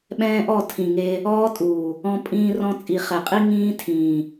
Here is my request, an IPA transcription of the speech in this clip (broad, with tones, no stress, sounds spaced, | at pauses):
ɓ ɛ̃ː˦ ʔ ɔ˦˨ tʰ ĩ˨ ŋ e˧ | ɔː˦ tʼ uː˨ | ɔ̃˦ pʼ ĩː˦ r ɔ̃˦ t͡sʼ i˧ χ ɛ˨ qʼ i˦ ŋ ĩː˦ tʰ ĩː˨